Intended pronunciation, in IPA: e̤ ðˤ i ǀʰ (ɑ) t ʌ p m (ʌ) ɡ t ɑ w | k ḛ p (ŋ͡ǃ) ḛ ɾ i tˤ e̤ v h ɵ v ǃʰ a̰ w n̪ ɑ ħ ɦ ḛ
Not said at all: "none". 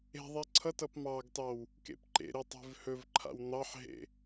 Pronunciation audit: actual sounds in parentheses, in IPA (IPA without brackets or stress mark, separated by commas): ʌ, ɑ, ǃ